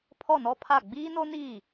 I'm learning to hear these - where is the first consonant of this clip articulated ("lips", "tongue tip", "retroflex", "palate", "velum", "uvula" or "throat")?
lips